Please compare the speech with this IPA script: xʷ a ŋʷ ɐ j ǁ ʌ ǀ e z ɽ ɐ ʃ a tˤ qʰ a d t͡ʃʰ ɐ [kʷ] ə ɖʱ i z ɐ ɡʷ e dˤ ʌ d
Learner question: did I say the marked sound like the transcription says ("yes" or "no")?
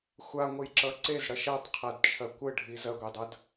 yes